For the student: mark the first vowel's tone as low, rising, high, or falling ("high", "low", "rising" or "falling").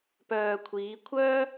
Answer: low